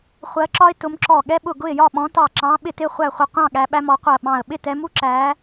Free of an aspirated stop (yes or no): yes